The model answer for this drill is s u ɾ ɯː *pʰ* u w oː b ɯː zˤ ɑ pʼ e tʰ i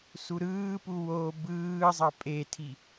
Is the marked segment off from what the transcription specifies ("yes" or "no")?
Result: yes